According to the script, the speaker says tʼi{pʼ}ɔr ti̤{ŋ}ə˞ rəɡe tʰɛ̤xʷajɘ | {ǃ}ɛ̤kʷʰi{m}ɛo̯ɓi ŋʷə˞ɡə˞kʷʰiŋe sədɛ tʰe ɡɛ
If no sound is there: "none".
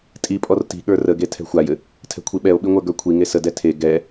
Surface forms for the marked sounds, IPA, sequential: pʼ, ɠ, tʰ, ɓ

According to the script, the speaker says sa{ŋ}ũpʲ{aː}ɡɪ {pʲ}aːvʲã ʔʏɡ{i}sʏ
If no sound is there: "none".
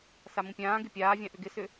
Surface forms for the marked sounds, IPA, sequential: m, ãː, pʲ, ɪ

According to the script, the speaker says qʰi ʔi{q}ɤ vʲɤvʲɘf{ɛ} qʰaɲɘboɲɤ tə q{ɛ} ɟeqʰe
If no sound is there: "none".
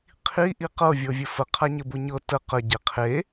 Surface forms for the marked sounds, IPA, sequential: q, ə, ə

